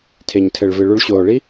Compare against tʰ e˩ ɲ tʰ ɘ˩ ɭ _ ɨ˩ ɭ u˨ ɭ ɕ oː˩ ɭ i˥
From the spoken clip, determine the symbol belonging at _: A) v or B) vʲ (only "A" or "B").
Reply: A